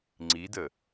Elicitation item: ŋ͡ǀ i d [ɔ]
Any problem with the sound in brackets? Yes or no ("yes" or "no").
yes